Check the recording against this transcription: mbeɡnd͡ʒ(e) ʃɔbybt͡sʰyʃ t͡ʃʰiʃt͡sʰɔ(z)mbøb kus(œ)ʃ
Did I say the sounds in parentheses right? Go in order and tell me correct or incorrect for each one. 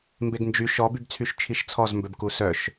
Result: incorrect, correct, correct

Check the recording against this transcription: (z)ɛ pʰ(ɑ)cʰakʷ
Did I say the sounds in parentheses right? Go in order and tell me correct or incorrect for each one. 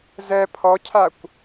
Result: correct, incorrect

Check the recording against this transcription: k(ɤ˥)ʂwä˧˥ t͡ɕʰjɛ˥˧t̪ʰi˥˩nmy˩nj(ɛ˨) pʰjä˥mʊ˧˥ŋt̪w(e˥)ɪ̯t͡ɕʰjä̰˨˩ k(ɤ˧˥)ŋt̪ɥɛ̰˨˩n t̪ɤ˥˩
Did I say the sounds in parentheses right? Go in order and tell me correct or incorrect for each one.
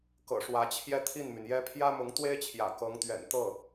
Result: incorrect, incorrect, correct, correct

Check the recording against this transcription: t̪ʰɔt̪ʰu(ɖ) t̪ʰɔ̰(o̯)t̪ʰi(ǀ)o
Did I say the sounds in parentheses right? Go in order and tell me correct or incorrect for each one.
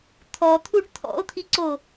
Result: correct, correct, correct

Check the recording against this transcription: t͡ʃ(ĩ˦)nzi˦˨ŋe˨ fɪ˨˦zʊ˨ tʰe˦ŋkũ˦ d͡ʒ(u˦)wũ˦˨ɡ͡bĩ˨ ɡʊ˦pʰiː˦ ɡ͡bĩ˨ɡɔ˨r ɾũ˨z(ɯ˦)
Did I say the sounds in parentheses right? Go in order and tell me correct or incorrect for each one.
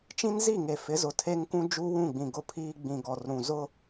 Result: correct, correct, incorrect

